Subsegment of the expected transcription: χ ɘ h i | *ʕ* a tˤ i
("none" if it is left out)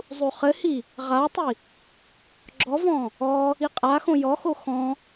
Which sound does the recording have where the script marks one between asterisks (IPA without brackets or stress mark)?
ʁ